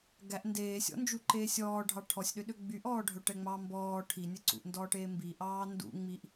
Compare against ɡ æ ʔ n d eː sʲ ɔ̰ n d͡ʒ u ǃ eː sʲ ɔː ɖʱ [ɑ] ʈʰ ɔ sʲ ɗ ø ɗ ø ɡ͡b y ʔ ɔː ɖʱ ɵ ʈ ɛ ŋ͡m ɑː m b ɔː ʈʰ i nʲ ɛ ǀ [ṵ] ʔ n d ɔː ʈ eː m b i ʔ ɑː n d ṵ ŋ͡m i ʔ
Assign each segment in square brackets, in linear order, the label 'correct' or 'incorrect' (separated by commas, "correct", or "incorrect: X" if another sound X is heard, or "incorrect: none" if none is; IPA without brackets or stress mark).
correct, correct